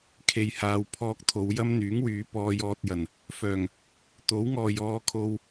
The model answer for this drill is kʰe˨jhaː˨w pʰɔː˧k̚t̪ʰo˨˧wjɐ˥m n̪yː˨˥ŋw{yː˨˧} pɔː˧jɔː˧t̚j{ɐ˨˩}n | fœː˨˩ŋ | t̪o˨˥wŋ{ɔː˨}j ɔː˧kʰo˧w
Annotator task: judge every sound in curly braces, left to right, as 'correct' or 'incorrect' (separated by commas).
correct, correct, correct